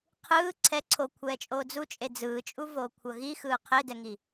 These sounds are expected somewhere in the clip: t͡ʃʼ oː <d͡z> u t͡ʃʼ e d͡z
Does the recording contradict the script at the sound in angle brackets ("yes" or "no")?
no